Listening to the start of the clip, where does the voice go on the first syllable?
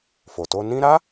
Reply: low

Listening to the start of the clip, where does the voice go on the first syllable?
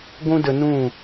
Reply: high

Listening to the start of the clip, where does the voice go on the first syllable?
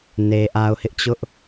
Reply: low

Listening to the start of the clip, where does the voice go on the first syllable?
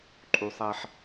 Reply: high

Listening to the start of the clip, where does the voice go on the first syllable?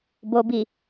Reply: low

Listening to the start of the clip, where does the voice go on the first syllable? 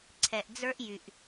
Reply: low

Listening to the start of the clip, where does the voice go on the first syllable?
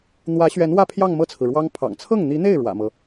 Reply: rising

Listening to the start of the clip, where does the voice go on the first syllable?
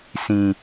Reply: low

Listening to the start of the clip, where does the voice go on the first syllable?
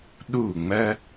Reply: falling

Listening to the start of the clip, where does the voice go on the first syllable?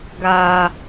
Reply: high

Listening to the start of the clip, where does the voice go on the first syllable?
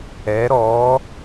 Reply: rising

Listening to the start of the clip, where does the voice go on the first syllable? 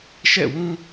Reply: falling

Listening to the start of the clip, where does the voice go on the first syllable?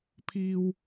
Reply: high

